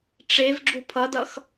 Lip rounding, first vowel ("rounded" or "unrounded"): unrounded